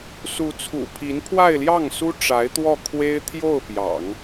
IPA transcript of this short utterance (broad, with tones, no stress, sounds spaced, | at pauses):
s u˧˥ t͡sʰ ṵ˨˩ pʰ i˧˥ n pʰ w a˥˧ ɪ̯ l j ɑ˥˩ ŋ s u˥ ʈ͡ʂ a˧˥ ɪ̯ t̪ w ɔ˥˩ kʰ w e˥ ɪ̯ t̪ʰ j o˥˩ ʊ̯ p j ɑ̰˨˩˦ ŋ